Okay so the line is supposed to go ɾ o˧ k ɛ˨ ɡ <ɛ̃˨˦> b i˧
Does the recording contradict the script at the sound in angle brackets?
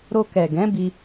no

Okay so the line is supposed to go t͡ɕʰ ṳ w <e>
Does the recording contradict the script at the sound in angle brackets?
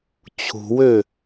yes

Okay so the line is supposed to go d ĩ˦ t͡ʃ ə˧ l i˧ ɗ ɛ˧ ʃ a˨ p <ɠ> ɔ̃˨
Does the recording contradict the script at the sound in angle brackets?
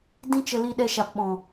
yes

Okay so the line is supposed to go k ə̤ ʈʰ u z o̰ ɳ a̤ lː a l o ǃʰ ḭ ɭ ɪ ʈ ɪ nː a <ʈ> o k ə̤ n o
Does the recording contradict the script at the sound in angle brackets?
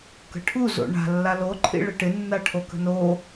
yes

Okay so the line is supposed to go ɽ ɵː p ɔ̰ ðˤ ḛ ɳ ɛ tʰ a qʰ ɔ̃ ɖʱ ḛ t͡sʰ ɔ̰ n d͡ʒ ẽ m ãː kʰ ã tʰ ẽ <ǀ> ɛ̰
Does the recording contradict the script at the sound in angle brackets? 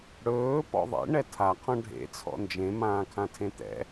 yes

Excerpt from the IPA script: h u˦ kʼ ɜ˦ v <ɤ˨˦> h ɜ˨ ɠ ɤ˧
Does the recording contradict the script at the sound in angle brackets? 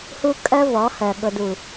yes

